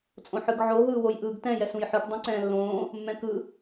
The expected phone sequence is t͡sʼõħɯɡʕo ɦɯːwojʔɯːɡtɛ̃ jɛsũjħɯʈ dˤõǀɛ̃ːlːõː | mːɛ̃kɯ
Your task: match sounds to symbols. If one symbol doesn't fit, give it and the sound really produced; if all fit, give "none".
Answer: none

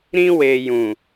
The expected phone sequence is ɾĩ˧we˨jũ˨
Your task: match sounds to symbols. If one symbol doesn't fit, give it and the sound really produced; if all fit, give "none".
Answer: none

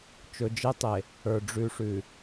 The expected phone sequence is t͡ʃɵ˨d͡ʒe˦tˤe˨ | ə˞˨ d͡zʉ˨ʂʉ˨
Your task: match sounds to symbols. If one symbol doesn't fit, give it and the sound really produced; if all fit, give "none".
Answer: d͡z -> ɖ͡ʐ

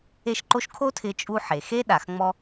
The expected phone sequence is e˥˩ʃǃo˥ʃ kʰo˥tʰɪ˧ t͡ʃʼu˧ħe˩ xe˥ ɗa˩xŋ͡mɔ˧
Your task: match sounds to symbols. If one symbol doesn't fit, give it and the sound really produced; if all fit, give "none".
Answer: none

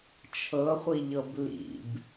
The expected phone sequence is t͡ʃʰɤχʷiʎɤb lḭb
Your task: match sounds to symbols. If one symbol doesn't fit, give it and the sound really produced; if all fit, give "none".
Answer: none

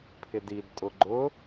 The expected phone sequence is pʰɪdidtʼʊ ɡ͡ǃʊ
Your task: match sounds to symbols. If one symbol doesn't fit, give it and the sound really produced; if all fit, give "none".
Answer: none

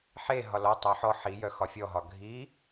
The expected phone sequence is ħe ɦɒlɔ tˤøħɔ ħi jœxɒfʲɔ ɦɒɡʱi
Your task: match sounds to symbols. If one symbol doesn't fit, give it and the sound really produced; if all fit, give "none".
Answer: ø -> œ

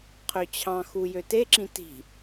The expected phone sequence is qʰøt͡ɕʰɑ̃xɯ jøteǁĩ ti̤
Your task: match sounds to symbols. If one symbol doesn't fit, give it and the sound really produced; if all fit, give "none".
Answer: ɯ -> u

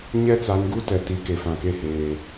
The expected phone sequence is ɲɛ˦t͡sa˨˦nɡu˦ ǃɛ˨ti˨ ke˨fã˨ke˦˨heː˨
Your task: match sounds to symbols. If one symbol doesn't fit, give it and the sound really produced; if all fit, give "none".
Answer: ǃ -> t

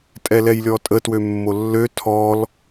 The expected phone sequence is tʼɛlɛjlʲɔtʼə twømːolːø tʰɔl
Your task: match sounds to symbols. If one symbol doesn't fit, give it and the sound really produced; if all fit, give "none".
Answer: none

